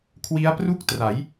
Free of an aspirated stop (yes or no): no